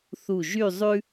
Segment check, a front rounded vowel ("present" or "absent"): present